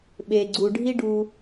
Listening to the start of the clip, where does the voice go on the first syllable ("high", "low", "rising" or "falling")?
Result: low